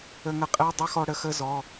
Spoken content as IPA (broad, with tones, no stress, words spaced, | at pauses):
ə˧ŋə˧qʼɛ˧˥˧ dˤɛ˥xɔ˧ɽə˧xə˧˥˧ zɔ˩˧˩